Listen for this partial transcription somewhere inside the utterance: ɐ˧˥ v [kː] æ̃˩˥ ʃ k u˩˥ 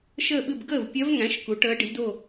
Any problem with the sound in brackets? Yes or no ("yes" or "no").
yes